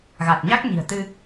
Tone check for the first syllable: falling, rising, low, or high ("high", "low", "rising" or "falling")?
low